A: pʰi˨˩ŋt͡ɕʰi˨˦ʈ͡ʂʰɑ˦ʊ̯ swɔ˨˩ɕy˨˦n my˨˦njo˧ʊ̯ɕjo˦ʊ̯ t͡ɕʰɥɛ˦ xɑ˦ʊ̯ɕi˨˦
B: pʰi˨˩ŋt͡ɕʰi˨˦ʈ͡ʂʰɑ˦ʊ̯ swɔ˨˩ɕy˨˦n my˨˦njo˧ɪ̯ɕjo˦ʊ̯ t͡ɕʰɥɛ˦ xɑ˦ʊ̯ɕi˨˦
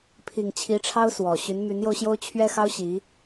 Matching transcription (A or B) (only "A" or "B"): A